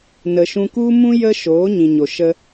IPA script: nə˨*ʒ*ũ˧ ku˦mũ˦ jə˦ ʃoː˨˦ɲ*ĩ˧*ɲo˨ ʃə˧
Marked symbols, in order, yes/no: no, no

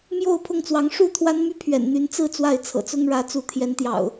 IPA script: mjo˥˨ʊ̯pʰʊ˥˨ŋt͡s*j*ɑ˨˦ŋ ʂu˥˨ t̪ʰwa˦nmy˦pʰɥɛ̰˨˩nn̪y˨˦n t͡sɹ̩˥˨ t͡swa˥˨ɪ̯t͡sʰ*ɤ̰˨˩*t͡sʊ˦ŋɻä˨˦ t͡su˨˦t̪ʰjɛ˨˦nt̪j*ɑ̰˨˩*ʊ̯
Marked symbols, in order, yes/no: no, yes, yes

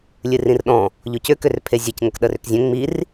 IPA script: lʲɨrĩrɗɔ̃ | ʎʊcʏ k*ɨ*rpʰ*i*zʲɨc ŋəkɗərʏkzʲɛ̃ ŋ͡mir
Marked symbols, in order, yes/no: no, no

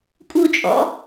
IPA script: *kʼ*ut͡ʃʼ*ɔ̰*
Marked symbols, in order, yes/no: yes, yes

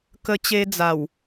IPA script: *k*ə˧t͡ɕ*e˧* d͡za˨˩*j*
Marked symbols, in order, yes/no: yes, yes, no

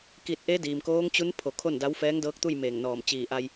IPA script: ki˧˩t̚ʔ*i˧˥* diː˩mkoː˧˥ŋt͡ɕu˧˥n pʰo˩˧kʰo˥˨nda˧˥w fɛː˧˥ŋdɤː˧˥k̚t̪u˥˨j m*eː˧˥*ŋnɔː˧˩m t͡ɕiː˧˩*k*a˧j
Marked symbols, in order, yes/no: no, no, no

